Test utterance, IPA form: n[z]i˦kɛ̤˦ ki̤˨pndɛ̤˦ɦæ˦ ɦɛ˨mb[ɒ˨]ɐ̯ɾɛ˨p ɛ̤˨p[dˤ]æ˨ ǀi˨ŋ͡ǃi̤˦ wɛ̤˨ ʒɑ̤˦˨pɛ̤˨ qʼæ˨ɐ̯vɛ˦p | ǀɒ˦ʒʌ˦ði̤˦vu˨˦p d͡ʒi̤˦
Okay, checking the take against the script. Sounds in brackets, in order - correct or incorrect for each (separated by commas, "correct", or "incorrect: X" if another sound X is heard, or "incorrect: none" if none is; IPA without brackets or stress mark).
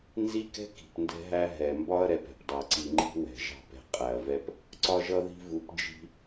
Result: correct, incorrect: ɒ˦, correct